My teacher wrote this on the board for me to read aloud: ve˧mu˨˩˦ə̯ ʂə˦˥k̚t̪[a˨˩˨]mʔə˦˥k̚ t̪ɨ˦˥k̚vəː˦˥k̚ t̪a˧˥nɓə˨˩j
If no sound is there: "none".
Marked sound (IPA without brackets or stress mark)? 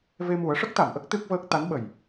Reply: a˨˩˨